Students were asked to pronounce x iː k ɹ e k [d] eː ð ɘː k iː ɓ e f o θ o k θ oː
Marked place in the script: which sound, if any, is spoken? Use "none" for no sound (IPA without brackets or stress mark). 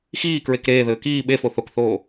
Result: ɾ